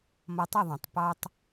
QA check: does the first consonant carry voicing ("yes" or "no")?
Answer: yes